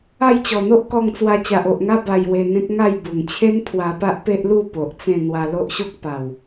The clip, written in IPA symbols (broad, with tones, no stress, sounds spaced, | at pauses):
a˥˧ j t͡ɕ ɔ˨˩ n̪ o˦ ʔ k ɔ˧ ŋ t͡s w a˧ t͡ɕ a˨ ʔ o˨ ʔ ŋ a˦ b a˧ j w e˧ n̪ ẽ˦ k̚ ŋ a˥˧ j b u˨˩ ŋ t͡ɕʰ e˦ n pʰ w a˧ p a˦ ʔ p e˦ ʔ l u˥˧ p o˨ ʔ t͡s ẽ˥˧ n̪ w a˧ l o˦ ʔ ɕ o˦ k̚ p a˨˩ w